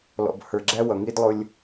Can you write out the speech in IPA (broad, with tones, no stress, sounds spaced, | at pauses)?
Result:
l ɔ̰˨ b h ə˞˨ ɡ͡ǁ æ˦ w ʌ˨ ŋ i˦ d lˠ ʊ˦ lʲ